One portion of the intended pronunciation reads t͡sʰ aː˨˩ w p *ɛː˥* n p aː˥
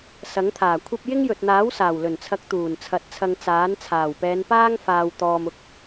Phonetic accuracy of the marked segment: incorrect: ɛː˨˧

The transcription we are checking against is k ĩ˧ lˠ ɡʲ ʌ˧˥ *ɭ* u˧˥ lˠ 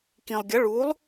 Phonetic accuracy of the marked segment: correct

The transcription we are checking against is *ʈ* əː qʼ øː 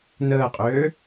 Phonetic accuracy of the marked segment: incorrect: n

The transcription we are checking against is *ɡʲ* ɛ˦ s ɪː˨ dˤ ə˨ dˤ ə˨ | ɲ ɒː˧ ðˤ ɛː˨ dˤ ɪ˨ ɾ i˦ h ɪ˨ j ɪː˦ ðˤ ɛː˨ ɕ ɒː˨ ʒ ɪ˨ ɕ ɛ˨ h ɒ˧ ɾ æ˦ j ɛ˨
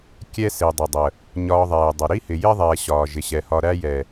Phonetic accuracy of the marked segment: incorrect: kʲ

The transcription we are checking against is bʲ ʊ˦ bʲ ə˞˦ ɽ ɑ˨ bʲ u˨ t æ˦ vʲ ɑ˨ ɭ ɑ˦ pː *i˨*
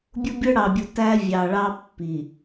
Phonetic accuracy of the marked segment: correct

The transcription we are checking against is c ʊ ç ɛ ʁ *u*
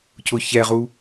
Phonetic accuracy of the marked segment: correct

